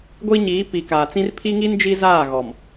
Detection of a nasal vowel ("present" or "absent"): present